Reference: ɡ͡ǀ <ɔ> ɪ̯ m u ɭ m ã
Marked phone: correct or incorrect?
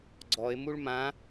correct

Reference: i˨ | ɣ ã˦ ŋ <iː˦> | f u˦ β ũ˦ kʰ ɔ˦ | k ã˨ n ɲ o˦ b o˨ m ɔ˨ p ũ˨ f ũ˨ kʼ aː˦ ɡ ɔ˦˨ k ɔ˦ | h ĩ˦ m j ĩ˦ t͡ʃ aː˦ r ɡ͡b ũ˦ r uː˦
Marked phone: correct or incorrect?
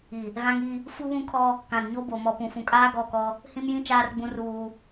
incorrect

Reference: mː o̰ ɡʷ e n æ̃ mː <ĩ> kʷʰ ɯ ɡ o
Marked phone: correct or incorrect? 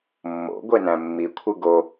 incorrect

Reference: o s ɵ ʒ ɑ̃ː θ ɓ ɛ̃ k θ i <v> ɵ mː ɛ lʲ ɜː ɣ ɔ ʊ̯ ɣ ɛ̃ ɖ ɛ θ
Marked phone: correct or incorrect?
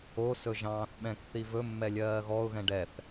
correct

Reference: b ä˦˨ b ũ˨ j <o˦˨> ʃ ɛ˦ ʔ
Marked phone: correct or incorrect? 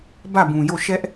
correct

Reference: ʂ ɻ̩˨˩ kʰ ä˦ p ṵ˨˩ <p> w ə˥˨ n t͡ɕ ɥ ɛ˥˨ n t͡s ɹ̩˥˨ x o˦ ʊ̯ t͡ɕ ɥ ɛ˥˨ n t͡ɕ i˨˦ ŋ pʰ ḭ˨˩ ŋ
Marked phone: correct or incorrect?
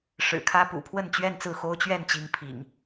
incorrect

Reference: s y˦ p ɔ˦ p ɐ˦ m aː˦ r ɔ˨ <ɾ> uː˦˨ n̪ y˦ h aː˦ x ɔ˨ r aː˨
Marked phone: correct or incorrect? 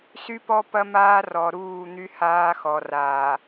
correct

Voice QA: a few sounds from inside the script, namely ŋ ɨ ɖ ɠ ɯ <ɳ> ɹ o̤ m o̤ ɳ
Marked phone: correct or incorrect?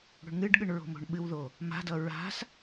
correct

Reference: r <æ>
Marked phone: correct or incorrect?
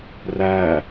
correct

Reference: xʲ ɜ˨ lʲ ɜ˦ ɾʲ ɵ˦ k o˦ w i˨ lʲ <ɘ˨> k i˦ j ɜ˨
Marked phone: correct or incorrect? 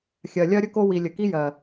correct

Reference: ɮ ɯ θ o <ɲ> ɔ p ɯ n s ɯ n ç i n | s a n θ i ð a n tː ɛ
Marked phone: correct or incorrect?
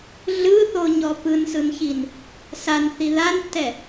correct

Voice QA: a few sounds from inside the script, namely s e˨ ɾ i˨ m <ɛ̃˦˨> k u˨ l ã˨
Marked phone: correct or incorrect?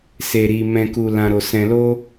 incorrect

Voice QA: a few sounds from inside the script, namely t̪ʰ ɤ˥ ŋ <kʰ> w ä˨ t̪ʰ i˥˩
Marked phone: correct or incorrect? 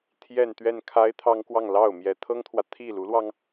incorrect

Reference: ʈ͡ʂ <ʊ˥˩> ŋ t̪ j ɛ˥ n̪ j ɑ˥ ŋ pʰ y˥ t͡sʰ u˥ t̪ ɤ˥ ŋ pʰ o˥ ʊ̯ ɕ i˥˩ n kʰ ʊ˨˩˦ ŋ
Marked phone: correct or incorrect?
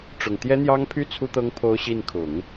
incorrect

